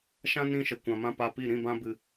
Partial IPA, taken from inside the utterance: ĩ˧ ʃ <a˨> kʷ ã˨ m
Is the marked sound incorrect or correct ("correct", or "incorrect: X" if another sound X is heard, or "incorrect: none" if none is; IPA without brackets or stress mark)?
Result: incorrect: ə˨